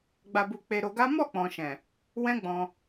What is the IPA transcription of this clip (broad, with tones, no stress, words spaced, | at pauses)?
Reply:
ɡ͡ba˧bu˧ k͡pe˧ɾo˧ɡa˦ mɔ˦˨k͡pɔ̃˨ʃɛ̃˨ | wɛ̃˦ɡ͡bɔ̃˧